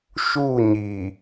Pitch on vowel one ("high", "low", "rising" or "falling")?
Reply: falling